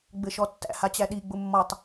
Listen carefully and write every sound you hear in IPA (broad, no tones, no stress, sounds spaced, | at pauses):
ɡ͡b ɘ ʃ ɔ tː æ̰ h a t͡ɕ æ ɗ i ɡ͡b ʊ mː ɔ tˤ